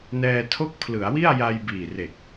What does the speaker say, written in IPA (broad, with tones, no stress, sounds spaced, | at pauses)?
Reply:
n ɛː˧ tʰ o˦˥ k̚ pʰ l ɯ˩˦ a̯ w i˥˩ a̯ j a˧ j b iː˨˩ r e˨˩ k̚